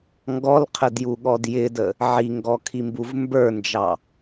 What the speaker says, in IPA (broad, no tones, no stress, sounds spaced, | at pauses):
ŋ ɡ ɔ l qʰ ə d j u ɠ ɔ d j ɪ d ə | ʕ i ŋ ɡ ɔ kʰ i m b u v m b ə˞ n d͡ʒ ɑ